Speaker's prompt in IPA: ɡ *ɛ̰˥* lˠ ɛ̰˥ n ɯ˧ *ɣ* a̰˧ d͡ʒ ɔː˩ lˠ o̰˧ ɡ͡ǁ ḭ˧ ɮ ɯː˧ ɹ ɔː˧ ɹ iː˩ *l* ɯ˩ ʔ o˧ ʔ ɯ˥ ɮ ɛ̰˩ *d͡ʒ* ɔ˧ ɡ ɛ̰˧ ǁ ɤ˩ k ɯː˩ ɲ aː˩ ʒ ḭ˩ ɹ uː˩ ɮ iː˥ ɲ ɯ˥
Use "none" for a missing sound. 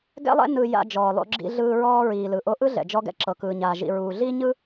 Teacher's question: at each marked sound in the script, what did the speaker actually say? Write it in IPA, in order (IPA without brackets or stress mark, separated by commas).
ɛ̰˥, j, l, d͡ʒ